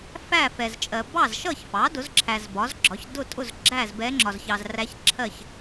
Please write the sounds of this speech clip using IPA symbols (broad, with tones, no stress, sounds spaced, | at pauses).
f æ˥˨ f ɛ˨ z t͡ʃʼ ɜ˨ b ɑ˥˨ z ʃ ʌ˥˨ ç f ɑ˩˥ d ʊ˩˥ z ǁʰ æ˨ z b ɒ˩˥ z ɡ͡ǁ ɒ˩˥ ç d ʊ˥˨ tʼ ʊ˥˨ z ɡ͡ǁ æ˥˨ z b ɛ˧˥ ŋ͡ǁ ɒ˨ z ç ɑ˨ z r æ˧˥ ç ǁʰ ɜ˥˨ ç